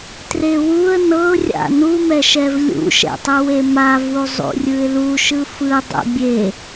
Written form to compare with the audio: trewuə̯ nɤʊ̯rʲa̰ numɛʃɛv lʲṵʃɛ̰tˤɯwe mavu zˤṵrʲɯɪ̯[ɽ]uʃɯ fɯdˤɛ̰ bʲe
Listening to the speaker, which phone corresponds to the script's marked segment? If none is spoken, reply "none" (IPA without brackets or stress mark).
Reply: l